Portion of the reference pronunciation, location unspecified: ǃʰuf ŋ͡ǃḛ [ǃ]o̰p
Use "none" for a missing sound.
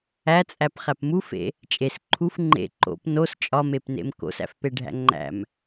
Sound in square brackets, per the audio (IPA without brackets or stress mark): ǃ